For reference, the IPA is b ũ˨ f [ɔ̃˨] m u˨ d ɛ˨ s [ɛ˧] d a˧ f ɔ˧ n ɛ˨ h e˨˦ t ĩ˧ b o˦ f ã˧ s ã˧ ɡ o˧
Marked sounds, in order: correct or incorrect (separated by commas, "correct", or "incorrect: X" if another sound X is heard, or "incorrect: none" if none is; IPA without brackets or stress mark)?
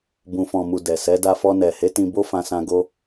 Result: correct, incorrect: ɛ˨˦